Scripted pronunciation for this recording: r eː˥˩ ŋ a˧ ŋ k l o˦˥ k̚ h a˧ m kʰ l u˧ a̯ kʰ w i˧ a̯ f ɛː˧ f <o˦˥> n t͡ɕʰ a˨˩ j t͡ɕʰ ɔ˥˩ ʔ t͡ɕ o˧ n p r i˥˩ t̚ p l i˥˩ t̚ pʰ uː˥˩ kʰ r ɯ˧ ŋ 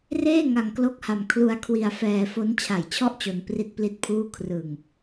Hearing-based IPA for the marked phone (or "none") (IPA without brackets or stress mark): o˦˥